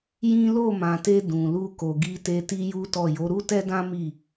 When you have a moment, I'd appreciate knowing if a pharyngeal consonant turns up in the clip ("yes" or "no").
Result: no